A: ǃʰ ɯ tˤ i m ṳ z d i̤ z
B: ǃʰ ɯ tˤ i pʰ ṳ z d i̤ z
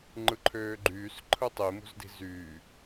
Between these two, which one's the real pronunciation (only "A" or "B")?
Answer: A